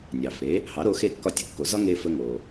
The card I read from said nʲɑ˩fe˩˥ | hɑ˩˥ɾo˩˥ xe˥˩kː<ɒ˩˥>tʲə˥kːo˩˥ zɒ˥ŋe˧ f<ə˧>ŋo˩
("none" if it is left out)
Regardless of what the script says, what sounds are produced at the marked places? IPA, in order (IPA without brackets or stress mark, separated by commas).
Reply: ɒ˥˩, ə˧